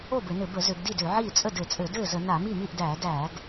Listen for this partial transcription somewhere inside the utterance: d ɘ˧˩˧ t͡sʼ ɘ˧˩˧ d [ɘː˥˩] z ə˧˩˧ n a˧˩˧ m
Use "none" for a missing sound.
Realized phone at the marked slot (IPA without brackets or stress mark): ɘː˥˩